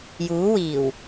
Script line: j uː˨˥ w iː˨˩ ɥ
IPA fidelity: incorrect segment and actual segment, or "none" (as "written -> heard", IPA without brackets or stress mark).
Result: ɥ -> w